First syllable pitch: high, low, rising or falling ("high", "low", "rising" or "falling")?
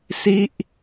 falling